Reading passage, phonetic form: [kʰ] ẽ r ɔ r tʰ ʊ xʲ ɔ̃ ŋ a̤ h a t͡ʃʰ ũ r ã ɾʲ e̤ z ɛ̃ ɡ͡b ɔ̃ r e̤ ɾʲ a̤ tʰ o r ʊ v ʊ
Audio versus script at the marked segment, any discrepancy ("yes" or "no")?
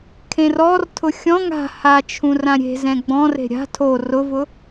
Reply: no